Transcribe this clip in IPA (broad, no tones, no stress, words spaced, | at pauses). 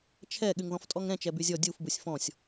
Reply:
t͡ʃʰɛ ɠyŋðɔ̃ftʼɔŋɾɛ̃ t͡ʃɛbyzʲɔ dʲuf busʲfɔ̃sʲ